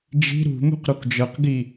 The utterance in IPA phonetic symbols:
d͡ʒ i̤ ɾ ṳ m ṳ q ɾ u k d͡ʒ ɤ q ɡ i

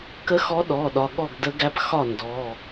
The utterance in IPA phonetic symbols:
k ə˧˥ x ɔ˧˥ ɗ ɔ˩˧˩ ɗ ɒ˩˧˩ ɠ ɔ˥˩ ɡ d ə˧˥ ɡ æ˧˥ p x ɒ˥˩ n d ɔ˩˧˩

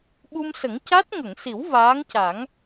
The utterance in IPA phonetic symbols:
ɓ u˧ m s ə˨˩˦ ŋ c a˦˥ t̚ ŋ ə˨˩˨ ŋ s i˨˩˦ w v aː˧˥ ŋ c a˨˩˦ ŋ

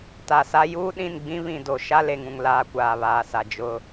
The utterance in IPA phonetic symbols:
t a˨ s a˦ j uː˦ ɗ ĩ˦˨ n ɡ͡b ĩ˦ β ĩ˨ d o˨ ʃ a˦ l e˨ ŋ ũ˨ ŋ l aː˦ kʷ aː˨ β aː˨ s a˨ d͡ʒ ʊ˦

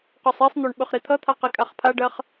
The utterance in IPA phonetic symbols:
q o sˤ i sˤ n̪ o ɳ ɓ ɵ χ ɾ i t̪ʰ ʌ t̪ʰ a q i kʼ a χ pʰ a ɖ ɜ χ

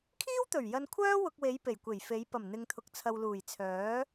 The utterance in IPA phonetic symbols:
kʰ iː˥ w t̪ ɵ˨˩ ɥ j ɐ˧ n kʷʰ œː˥ w ʊ˧ k̚ w e˨˧ j p e˨˩ j kʷ e˨˩ j f e˨˧ j p ɐ˨˩ m n̪ ɪ˨ ŋ t̪ʰ ʊ˨ k̚ t͡sʰ ɐ˨ w l uː˨˩ j t͡sʰ œː˨˥

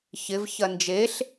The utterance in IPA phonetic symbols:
ç ɪ v ç ɐ n d͡ʒ e ɬ

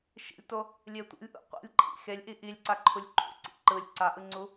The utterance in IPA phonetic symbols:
ʃ ḭ lʲ t o | lʲ e tʷ ḭ lʲ ʔ ṵ qʷ ḭ lʲ ǃʰ ḭ x e lʲ ʔ i ʔ i lʲ ǀ a ǃʰ u lʲ ǃʰ ṵ ǀ ḭ ǃ ɯ lʲ ǀ a ʔ ɯ ŋ͡ǀ u

